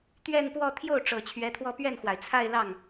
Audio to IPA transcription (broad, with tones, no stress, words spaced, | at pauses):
t̪ɥɛ˥˧npwɔ˥˧ t̪ʰjo˥˩ʊ̯ ʈ͡ʂɤ˨˩t͡ɕʰɥɛ˧˥t̪ʰwɔ˥˧ pɥɛ˥˩nxwa˩ɪ̯ t͡sʰa˥˧ɪ̯lɑ˥˩ŋ